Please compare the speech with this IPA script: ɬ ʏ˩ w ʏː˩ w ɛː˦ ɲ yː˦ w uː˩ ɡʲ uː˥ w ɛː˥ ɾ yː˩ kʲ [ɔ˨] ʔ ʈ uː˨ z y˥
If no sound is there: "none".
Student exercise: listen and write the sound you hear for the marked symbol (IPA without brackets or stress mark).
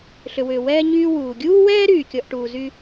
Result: ɔ˨